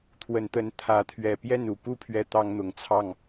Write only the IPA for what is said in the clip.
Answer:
t̪ʰwə˨˦nt̪ə˨˦n t̪ʰä˨˦t̪ʰɥɛ˨˩ pjɛ˥˨nu˨˩pu˥˨ pʰɥɛ˦t̪ɑ˦ŋn̪ʊ˨˩ŋt͡sʰɑ˥˨ŋ

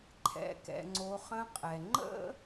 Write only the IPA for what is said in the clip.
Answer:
ǃʰɛ̰˩˧kɛ̰˩ ŋ͡ǀo˩˧χə̃˧˥qʼɛ˩ ŋ͡ǃə̰˥

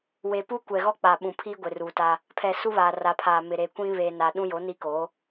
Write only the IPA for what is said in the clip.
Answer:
we˨pu˦kʷɛ˨ ɣɔ˦k͡pa˨ɓũ˨pʰiː˦ ɡʷe˨ru˨ta˦ | pʰɛ˨ su˦βaː˨ra˨pʰaː˨ mɪ˨ɾe˨kʷĩ˦ βeː˨naː˨ɗũ˦jo˨˦ ni˦ko˨˦

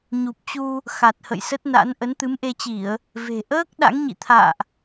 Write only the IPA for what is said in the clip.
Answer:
ɲu˨˩p̚t͡ɕu˧ | xa˨˩t̚hə̰˧˨jsə˦˥t̚na̰˧˥n ʔə˨˦nt̪ɨ˨˦mʔe˧t͡ɕi˧˩˨ə̯ | ve̤˨˩ ʔəː˦˥k̚ ɗa̰˧˥ŋɲḭ˧˨t̪ʰa̰ː˧˨ʔ

